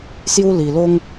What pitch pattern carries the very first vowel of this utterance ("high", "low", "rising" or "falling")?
high